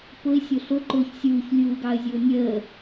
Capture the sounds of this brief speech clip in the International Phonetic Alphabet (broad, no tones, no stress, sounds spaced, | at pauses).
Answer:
p ʊ ɪ̯ sʲ ʊ ɬ ʊ ǃ ʊː ç sʲ uː ç lʲ uː ɡ ɑ ə̯ zʲ ʊː nʲ əː